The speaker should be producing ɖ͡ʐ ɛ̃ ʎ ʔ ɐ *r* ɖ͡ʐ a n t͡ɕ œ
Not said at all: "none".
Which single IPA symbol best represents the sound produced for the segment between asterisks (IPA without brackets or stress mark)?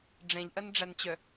n